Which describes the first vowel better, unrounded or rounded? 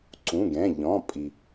rounded